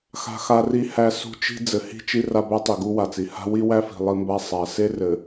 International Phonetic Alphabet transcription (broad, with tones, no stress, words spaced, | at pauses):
xa̤˦xa˦ri˦hæ˦ sṳ˦t͡ʃi̤˦ d͡zɘ˨hi̤˦˨t͡ʃi˦ ra˦bæ˦tˤi˨ ɡu˦wa˨t͡si˨ ha̤˦wi˦wæ˦fi̤˨ lˠi˦mba˦sˤa˨˦ se˦rɘ˨